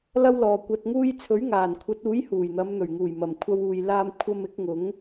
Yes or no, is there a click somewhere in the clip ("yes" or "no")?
no